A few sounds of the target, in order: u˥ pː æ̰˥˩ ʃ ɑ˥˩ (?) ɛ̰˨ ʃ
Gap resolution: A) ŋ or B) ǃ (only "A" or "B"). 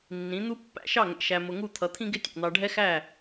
A